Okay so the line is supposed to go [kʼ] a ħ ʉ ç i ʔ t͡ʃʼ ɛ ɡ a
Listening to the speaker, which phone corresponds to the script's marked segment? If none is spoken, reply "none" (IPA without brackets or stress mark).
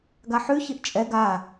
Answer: ɡ